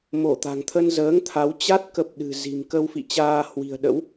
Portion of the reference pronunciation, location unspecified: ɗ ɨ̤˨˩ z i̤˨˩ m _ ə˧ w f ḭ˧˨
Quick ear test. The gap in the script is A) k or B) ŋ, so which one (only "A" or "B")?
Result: A